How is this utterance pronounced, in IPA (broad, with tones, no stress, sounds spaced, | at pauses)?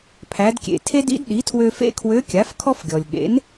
pʰ æ˩˧ d kʲ ḛ˩ tʰ e˥ d ḭ˧˥ d ɗ i˩˥ tʰ w ø˧ f ḛ˥ kʰ w ø˧˥ kʲ a˩˥ f kʰ ɔ˥ f ɡʲ ɔ˩ lʲ ɠ ḛ˩˥ n